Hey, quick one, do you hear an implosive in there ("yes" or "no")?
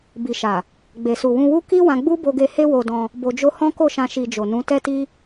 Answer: no